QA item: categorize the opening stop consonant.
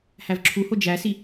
click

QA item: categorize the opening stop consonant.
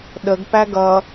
implosive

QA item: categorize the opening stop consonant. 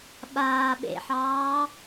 implosive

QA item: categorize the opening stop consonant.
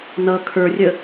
aspirated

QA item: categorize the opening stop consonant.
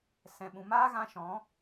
implosive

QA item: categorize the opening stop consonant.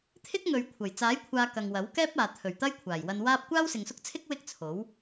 aspirated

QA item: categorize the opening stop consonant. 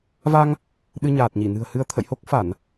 implosive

